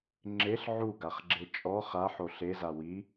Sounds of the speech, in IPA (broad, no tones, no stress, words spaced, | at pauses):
ŋ͡ǁeɬ ʕuɡaχɡ͡ǁe t͡ʃʼɔ χaħo ɬeza wi